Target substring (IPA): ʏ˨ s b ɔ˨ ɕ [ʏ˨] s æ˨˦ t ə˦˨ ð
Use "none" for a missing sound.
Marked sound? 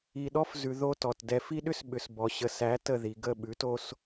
ə˨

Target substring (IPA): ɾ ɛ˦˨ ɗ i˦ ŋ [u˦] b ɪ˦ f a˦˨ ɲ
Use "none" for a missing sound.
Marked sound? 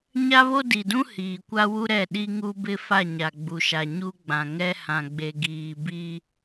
u˦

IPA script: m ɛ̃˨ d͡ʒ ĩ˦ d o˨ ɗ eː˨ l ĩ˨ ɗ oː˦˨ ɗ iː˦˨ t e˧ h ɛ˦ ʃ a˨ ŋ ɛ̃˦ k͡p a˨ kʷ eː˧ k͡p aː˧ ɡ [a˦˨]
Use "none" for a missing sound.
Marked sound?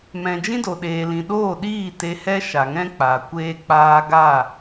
a˦˨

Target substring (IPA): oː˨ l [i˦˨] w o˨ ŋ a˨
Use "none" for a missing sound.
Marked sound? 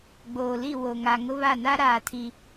i˦˨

